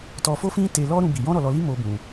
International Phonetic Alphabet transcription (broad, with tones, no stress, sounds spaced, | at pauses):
t ɔ˧ f o˦ f ĩ˦ t e˧ l ɔ˦ ɾ ũ˦ b i˧ j ɔ̃˦ ɾ ɔ˧ l ɔ˧ l i˦ m o˦ b ũ˧